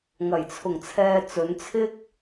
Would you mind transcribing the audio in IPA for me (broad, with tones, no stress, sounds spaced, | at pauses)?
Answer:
ŋ ɐ˨˩ j t͡sʰ ʊ˨˩ ŋ t͡sʰ ɛː˧ t͡s ɵ˨˧ n t͡sʰ ɪ˥ k̚